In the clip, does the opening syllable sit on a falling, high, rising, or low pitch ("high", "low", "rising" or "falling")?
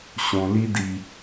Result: low